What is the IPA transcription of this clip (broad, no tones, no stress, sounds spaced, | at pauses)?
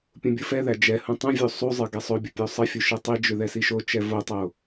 pʲ ũ bʲ ɯ f ɛ ð æ d͡ʒ ɛ h ũ tˤ ũ vʲ u sˤ u zˤ ɯ ɡ ɛ sˤ o bʲ ʊ pʲ o sˤ ə fʲ u ʃ ɛ tˤ i d͡ʒ ʏ ð ɛ s i ʃ o t͡ʃ ɛ v o tˤ o